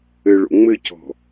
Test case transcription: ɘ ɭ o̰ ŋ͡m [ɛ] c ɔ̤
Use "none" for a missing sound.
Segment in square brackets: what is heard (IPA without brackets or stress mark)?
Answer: ɘ